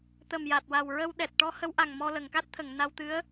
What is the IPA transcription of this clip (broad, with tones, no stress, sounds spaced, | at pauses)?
t̪ ə˨˩ m j a˨˩ t̚ w a˨˩ w ɹ ə˧ w ɗ ɛ˨˩ t̚ ʈ ɔ˧˥ h ə˧˥ w ʔ a˨˩ ŋ m ɔ˧ l ə˨˩˨ ŋ k a˦˥ t̚ t̪ʰ ə˨˩˨ ŋ n a˧ w t̪ ɨ˧˥ ə̯